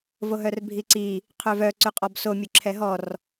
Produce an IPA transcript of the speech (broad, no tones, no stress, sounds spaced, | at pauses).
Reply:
v o ɦ œ r bʱ i ǀ i | qʰ ø v œ ǀ y qʼ ɔ b s o mʲ ø ǁʰ ɛ ɦ ɔ r